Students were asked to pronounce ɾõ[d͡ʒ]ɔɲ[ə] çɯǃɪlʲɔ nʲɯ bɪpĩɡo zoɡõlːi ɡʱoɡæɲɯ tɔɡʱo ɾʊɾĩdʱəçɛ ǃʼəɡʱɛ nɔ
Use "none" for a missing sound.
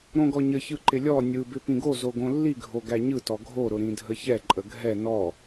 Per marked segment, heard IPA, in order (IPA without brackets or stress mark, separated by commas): ɡ, ə